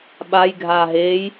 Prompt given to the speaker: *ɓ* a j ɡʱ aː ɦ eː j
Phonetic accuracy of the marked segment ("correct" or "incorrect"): correct